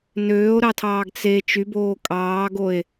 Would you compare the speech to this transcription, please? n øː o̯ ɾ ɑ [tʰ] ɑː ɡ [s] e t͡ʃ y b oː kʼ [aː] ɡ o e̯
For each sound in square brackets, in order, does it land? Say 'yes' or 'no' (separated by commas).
yes, no, no